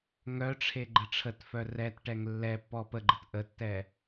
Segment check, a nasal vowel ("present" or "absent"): absent